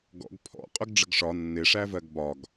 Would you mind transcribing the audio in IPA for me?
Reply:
ɡ ɔ̰ ɡ pʰ ɔ̰ qʼ ʊ ɡ ɖ͡ʐ ə ɡ ʂ ɒ nː ɪ ʂ æ v ɜ ɡ b ɒ ɡ

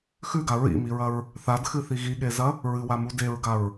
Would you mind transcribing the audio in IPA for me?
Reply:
x ʉ ɡ a ɹ ḭ m i ɹ ɐ ɹ | θ a d x ɨ θ i ɣ i ɠ e z ɐ | ɹ ɨ w a m u d e ɹ ɡ a ɹ

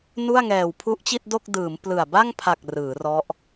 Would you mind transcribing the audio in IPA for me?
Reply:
n u˥˩ a̯ ŋ ɛː˨˩ w pʰ u˦˥ ʔ t͡ɕ i˥˩ t̚ d o˥˩ k̚ d ɯː˩˦ m p l ɯ˨˩ a̯ b a˥˩ ŋ pʰ a˨˩ k̚ r ɯː˩˦ r ɔ˦˥ ʔ

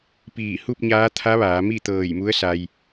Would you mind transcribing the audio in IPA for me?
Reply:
p iː˧˩ h u˥˨ p̚ ɲ aː˧˥ t̪ʰ a˧˥ ʋ aː˩˧ m i˥˨ t̪ ɤː˧˩ j m u˧˥ ə̯ s a˧ j

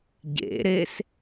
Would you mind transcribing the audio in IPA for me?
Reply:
ɟ ḛ ɾ e s

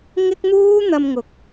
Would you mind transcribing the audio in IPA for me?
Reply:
ŋ ɪ˥ k̚ n̪ uː˥ n̪ ɐ˧ m ŋ ʊ˨˥ k̚

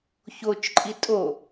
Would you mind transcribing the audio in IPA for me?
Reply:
ç o t͡ʃ ǃʼ i tʼ o

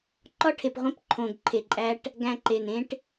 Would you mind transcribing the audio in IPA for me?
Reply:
ǃ ɒ˦ ʈʰ e˨ p ʁʷ ẽ˦ p ǃʰ õː˨ ɡ ǃʰ e˨ ǃʼ æ˦ ʈ | ɡ æ̃˨ ǃ e˨ n ẽ˦ ʈ

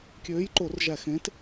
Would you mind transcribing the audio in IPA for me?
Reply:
kʲ øː˨˥ j ǃ o˧˩˧ r ʒ æ˧˩˧ x ẽ˨˥ t

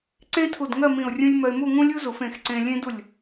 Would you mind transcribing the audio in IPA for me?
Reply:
ǀ ẽ˥ tʰ u˧˩ d ŋ ɜ˥˧ m ĩ˧˩ ʊ̯ rʲ ũ˥ lʲ m ɜ˧ ɪ̯ m u˥˧ ŋ ũ˥ lʲ u˥ z u˩˧ f ẽ˩˧ x ǀ ẽ˧ lʲ ẽ˥ d u˧˩ lʲ

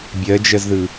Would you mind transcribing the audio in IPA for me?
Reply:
bʲ ɜ d͡ʒ ɜ z ð ɯ

